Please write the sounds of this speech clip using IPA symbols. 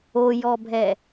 o j ɔ bʱ ɛ

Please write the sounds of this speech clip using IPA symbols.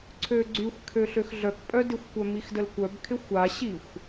ǀʰ ø ɡ͡ǀ y xʷ kʰ ø ɬ ø x ɮ œ k pʼ œ d ɪ xʷ kʷ œ m i x d ə l kʷ œ b kʰ ɪ xʷ a ɕ i xʷ

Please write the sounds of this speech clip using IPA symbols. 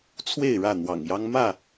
t͡sʰ w e˥˨ ɪ̯ ɻ ä˥˨ n̪ w ɑ̰˨˩ ŋ j ɑ˦ ŋ m ä˥˨

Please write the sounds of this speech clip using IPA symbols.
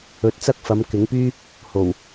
ɵ˨˥ t̚ t͡s ɐ˥ k̚ f ɐ˨˧ m k ɪ˨˥ ŋ p yː˥ | h o˨˩ w

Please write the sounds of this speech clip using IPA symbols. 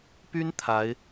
p y˥ n t̪ʰ a˧˥ ɪ̯

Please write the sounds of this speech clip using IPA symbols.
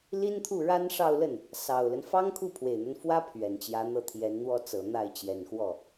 l i˥ n t̪ʰ u˥˩ ɻ a˥ n ʂ ɑ˥˧ ʊ̯ l ə˥˩ n | s ɑ˨˩ ʊ̯ l ə˦ n f ɑ˥ ŋ kʰ u˥˩ pʰ w e˨˩ ɪ̯ n̪ a˦ n f w ä˥ pʰ ɥ ɛ˨˩ n t͡ɕ j ä˧˥ n̪ ɤ˥˩ t̪ʰ j ɛ˧˥ n n̪ w ɔ˥ t͡s ɤ˨˩ n̪ a˥˩ ɪ̯ t͡ɕ j ɛ˨˩ n x w ɔ˥˩

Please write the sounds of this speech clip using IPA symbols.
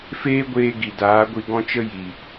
f eː˦ ɡʷ eː˧ ɡ i˨ d aː˨˦ ɡʷ i˧ ɡ ɔ̃˦ t͡ʃ ə˦ j i˨

